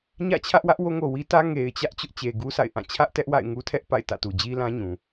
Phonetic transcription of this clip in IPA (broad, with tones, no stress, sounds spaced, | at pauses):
ɲ ä̰˦˨ t͡ɕʰ ä˦ ʔ w ä˦ ʔ w o˦ ŋ o˨ w i˦ t ä˦ ŋ e˨ ɪ̯ t͡ɕ ä˦ ʔ t͡ɕ ʊ˦ ʔ t͡ɕ e˨ ɡ u˦ s a̰˦˨ ɪ̯ ʔ ã˦˨ t͡ɕʰ ä˦ ʔ t ɛ˦ ʔ w a̰˦˨ ɪ̯ ŋ u˦ tʰ ɛ˦ ʔ p a̰˦˨ ɪ̯ t ä̰˦˨ t u˨ d͡ʑ i˦ l ã˦ ɲ ũ˨